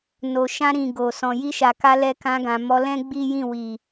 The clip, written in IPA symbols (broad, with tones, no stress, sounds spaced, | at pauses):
n o˨ ʃ ã˧ ɾ ĩ˨ ɡ o˨ s ɔ̃˨ j i˧ ʃ a˨ k a˧ l ɛ˧ k ã˧ ɡ ã˨ m ɔ˧ l ɛ̃˦ ɡ͡b i˦ j ĩ˦˨ w i˨